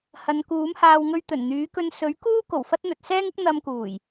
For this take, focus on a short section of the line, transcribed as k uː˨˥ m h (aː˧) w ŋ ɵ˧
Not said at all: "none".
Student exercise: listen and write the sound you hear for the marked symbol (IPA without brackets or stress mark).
aː˧